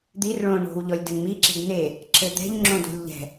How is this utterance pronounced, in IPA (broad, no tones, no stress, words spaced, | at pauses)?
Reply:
d̪ir ɭõ ɳo̤w ʎɔlʲdɘŋmiǁe̤d n̪e | ǁɘd̪ɛ̤ʎ ŋ͡ǁõdo̤lʲʎɛ̤